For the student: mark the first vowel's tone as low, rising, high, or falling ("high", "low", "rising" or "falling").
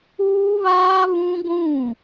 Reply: high